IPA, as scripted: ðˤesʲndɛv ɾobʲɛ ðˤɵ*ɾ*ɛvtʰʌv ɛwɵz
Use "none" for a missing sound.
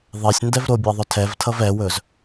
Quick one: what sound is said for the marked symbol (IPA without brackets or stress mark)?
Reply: tʰ